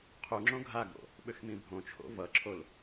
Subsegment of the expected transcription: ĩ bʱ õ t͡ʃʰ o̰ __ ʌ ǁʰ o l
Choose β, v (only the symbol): v